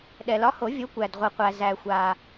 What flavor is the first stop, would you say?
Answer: implosive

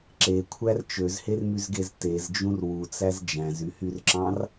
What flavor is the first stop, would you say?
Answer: click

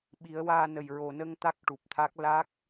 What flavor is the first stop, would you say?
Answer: implosive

